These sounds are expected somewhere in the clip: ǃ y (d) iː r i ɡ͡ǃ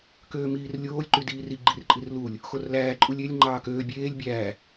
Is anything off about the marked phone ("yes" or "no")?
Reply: no